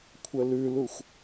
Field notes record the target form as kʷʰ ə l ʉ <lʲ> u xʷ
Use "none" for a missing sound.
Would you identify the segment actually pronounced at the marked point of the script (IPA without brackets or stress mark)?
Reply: l